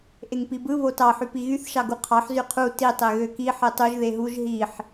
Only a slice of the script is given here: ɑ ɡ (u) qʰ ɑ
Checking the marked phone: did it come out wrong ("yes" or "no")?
no